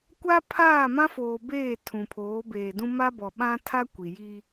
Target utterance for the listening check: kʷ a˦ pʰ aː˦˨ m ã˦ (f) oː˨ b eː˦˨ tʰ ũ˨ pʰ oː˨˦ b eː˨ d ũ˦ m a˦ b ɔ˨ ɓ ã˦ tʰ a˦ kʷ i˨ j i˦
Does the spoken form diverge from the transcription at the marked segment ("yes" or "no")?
no